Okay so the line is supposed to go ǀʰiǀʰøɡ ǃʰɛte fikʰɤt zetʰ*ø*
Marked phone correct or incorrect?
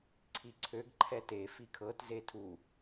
incorrect